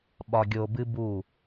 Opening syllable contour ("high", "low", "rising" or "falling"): low